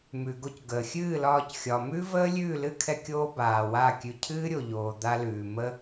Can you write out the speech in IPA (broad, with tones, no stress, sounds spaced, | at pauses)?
m ʉ˨ ɡ o˧ c ɡ əː˨ xʲ ɨː˦˨ l ɒː˧ c xʲ ɒ˨ m ʉ˦ v əː˦ lʲ ʉː˦˨ l ɨ˦ kʰ ɛ˧ kʲ oː˧ b aː˨ w a˦˨ kʲ ʉ˧ cʰ ɨː˦ ɾʲ o˨ ʎ oː˨ d̪ a˦ l ʉː˨ m ə˦